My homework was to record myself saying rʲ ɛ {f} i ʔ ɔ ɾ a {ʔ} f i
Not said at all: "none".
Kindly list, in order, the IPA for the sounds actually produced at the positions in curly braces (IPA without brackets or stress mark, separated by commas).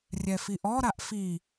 f, ʔ